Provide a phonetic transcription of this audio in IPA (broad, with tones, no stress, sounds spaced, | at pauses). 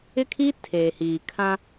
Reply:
ɪ˦ kʰ i˦ tʰ eː˨ h iː˨ kʰ ã˦